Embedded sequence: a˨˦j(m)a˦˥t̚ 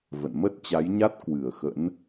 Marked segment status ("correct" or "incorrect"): incorrect